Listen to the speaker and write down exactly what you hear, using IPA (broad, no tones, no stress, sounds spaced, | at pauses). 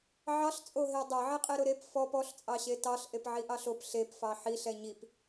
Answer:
ʕ ɑ ɬ t͡sʼ o ɦ e dˤ ɛ ʕ e qʼ e ɾ ʊ ɾ e p f ɔ p ɔ ɬ t͡sʼ ɑ ɕ e t ɑ ɬ ʔ e p ʕ i ʔ ɑ ɬ o p ɬ e p f ɑ ħ i ɬ ɛ ɲ i p